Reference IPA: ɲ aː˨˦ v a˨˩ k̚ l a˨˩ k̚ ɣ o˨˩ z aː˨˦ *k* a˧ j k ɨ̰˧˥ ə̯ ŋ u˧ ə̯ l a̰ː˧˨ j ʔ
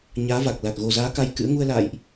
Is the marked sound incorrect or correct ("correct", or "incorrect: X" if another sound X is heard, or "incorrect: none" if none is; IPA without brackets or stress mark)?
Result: correct